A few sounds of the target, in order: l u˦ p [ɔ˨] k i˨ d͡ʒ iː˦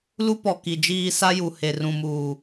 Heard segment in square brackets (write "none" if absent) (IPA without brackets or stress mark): ɔ˨